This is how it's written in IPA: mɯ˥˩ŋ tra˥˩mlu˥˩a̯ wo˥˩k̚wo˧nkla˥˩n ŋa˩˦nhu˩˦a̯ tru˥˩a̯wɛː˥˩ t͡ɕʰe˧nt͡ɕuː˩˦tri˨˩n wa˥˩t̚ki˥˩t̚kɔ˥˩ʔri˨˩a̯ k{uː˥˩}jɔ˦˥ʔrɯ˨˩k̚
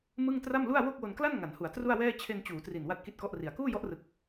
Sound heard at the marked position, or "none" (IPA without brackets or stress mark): uː˥˩